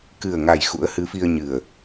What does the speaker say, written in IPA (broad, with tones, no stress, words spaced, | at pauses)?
kɨ˨˩ə̯ŋa˨˩j xṵ˧˥ə̯hɨ˨˦fi˧ə̯ ɲɨ˨˩ə̯